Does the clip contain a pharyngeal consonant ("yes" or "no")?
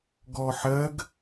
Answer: yes